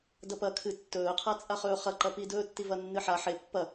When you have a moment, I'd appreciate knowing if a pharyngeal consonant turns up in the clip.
yes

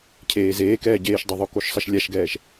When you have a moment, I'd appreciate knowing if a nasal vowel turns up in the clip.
no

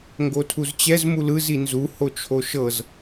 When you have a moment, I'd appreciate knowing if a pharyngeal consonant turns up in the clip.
no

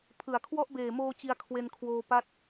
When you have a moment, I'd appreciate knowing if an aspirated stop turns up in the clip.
yes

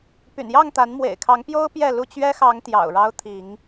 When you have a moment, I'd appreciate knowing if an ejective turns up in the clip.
no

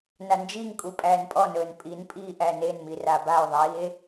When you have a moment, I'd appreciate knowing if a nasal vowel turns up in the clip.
no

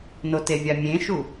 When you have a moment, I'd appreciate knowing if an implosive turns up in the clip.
no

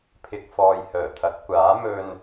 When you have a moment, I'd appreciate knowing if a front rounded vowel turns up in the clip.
yes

